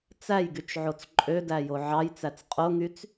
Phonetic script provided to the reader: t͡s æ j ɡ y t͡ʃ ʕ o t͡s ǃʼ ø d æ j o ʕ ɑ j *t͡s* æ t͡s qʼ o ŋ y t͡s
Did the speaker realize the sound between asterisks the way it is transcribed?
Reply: yes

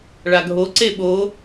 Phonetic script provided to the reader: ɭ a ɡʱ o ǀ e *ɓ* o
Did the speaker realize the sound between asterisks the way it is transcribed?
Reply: yes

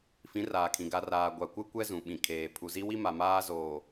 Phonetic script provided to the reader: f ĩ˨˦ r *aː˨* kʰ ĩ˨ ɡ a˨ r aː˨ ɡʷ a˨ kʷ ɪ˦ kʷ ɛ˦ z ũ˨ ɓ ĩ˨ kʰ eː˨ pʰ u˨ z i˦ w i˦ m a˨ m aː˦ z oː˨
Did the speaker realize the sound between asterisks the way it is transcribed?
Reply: yes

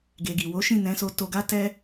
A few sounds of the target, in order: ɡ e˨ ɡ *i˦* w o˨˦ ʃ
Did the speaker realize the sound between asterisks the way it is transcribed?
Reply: no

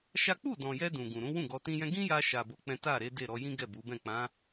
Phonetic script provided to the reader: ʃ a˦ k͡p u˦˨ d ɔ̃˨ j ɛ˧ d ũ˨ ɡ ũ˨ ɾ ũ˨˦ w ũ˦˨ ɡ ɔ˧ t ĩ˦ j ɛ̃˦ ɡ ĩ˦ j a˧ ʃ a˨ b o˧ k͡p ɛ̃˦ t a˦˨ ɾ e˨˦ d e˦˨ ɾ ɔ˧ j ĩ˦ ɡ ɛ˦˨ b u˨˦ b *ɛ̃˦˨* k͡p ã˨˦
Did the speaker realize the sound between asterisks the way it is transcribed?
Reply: yes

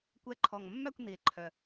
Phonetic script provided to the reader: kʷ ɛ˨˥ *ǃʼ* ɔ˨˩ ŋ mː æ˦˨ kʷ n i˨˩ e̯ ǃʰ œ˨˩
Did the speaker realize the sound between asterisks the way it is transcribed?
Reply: no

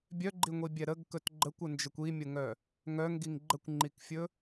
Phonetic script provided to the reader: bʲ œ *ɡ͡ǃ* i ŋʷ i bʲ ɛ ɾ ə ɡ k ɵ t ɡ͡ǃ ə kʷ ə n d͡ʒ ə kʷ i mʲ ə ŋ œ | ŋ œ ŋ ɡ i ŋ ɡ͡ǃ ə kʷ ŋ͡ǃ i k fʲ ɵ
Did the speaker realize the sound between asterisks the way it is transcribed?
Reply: yes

